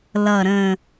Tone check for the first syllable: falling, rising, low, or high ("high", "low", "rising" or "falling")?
low